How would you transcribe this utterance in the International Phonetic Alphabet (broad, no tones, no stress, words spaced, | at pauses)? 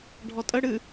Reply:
ɖʱɔtʼə ɽɨ